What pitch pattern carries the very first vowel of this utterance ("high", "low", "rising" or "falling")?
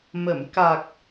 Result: low